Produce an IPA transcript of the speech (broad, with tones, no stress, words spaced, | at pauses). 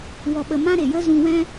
wɔ˧ɓə˧mã˦ ɾe˨jə˦zũ˧wɛ̃˦